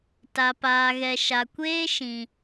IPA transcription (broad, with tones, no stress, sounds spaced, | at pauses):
t a˨ p aː˨ ɣ ɛ˨ ʃ a˨ kʷ eː˦ ʃ ĩ˨